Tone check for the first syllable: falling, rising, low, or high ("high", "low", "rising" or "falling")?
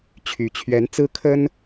rising